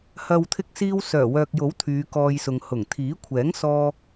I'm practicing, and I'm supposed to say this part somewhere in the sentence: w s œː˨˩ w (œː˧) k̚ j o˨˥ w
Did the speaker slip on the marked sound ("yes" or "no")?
yes